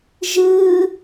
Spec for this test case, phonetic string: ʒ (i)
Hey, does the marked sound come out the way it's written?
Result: no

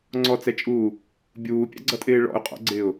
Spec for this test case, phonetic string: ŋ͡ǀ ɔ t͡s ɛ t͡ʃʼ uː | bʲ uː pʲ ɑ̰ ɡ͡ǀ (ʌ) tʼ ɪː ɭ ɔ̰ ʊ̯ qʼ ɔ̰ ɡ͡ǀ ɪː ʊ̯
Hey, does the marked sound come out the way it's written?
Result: yes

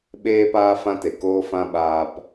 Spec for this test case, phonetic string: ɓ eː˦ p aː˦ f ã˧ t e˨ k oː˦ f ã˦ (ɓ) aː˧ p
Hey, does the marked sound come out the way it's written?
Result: yes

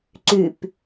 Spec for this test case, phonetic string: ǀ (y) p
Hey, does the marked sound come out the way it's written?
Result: yes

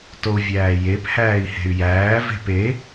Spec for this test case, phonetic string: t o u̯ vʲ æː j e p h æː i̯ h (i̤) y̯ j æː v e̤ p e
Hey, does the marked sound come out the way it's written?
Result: no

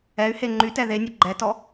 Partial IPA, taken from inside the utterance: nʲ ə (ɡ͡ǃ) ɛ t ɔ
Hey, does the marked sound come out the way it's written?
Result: yes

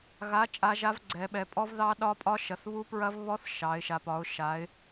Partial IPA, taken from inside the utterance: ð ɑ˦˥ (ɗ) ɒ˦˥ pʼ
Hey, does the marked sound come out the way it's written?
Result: yes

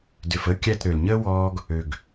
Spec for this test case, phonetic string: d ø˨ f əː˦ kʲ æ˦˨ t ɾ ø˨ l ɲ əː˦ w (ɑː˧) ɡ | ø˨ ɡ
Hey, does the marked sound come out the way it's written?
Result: no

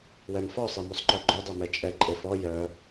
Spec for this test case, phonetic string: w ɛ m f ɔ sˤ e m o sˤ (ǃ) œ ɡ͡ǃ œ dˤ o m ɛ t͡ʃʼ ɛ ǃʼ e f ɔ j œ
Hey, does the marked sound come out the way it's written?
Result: yes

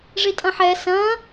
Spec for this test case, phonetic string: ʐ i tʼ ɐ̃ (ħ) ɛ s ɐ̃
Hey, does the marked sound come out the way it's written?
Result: yes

